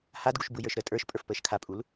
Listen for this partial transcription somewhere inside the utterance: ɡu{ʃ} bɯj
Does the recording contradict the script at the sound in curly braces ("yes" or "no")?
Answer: no